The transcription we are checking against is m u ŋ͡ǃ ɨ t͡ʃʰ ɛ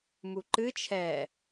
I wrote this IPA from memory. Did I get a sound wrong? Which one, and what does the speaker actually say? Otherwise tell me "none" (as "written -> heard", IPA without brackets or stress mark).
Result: ŋ͡ǃ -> ǃ